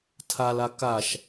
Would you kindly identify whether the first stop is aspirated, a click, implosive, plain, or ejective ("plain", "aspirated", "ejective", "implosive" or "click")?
aspirated